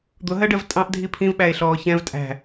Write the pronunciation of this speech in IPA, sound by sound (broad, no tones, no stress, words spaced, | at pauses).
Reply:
d̪ʊɦɜɖɜv tʼɑ̃ʔdʱi pʰĩvɓæe̯ɬɔː çɛ̃v tʼæ̤